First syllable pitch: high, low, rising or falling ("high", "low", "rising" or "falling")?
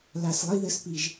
low